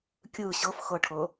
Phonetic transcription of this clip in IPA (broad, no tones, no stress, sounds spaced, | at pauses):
kʲ ɯ ɕ ɤ f x ɤ ʈʰ ɤ